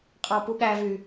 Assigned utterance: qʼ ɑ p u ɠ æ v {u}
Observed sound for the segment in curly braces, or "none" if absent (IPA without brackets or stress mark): y